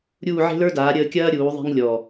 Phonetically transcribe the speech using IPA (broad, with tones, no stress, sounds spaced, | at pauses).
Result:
ɾʲ uː˥˧ ʕ e̤˥ l ə˞˥ d aː˨˦ ɾʲ əː˥˧ kʲ ɐː˥ ɾʲ uː˨˦ ðˤ e̤˥ ŋ lʲ ɔ˨˩